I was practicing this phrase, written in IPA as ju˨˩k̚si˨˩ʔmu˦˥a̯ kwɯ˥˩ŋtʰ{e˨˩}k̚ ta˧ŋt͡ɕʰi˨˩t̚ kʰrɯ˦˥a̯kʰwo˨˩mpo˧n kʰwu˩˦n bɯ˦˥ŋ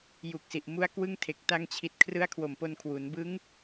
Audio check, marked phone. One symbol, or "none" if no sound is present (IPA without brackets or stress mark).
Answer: e˨˩